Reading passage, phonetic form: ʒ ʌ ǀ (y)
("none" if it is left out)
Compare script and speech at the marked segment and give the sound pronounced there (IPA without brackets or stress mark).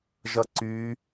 y